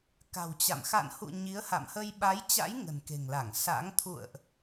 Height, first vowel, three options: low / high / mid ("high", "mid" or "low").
low